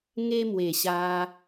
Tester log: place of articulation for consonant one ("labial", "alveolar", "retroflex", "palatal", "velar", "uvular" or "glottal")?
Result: velar